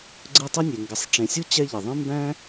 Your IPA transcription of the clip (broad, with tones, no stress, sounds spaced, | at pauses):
ɡ͡ǀ ɯ˦ tˤ ɯ˥ nʲ e˩ ŋ ɡ ɪ˨ sˤ ʈ͡ʂ ẽ˨ sʲ u˥ t͡ɕ ɛ˦ ʎ ɪ˩ ðˤ ẽ˥ m b æ̃˥